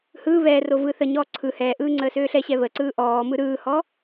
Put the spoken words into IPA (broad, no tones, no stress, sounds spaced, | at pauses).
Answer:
h ɯː β ɛː r o v ɯ θ ə ɲ ɔː ǀʰ ɯ h ɛː ʔ ɯː ŋ͡ǀ əː s øː ɬ ɛ ɕ ɛ β ə ǀ ɯː ʔ ɔː m ɯ ɾ ɯː h ɔ